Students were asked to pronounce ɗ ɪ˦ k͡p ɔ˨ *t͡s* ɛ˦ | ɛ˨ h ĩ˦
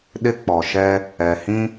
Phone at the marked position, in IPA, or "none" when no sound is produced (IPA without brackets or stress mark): ʃ